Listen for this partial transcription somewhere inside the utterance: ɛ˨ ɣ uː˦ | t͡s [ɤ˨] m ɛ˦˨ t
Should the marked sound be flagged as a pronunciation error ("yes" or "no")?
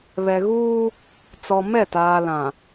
yes